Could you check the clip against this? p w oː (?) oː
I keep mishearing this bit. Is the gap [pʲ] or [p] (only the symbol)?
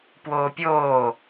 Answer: pʲ